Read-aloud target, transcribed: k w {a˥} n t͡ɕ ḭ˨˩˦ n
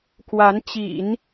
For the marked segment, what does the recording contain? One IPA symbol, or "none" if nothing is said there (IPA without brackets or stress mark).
a˧˥